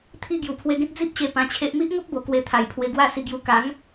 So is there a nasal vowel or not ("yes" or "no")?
yes